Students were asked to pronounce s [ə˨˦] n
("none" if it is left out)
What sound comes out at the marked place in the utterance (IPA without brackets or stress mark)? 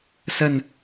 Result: ə˥˨